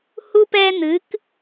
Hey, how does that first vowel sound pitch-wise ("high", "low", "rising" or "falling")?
high